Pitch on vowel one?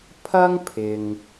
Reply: high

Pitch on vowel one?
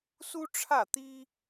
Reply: high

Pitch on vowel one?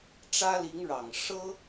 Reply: high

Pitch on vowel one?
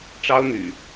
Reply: high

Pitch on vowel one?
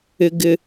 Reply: high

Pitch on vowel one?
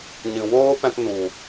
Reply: low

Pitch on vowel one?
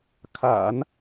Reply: low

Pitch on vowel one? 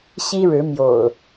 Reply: high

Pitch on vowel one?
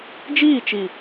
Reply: falling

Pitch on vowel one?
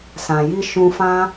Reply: low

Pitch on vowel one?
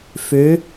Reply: rising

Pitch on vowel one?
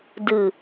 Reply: low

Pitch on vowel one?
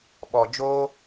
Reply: low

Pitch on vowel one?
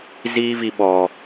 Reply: high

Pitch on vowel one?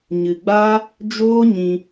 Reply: low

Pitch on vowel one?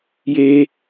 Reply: high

